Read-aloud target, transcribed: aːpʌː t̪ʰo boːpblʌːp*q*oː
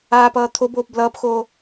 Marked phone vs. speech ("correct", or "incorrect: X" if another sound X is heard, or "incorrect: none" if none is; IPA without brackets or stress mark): incorrect: x